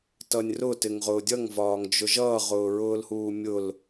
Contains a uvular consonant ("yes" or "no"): yes